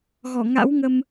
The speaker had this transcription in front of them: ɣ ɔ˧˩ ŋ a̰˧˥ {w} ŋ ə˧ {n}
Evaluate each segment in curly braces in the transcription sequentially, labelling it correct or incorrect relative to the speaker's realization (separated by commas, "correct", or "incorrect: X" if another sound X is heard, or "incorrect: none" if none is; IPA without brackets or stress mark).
correct, incorrect: m